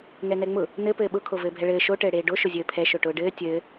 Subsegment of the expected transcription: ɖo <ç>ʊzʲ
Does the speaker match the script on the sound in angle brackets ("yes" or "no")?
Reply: no